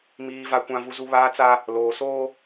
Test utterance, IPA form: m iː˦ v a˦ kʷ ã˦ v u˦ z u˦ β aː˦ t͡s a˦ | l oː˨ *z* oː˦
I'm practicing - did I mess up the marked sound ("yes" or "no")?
yes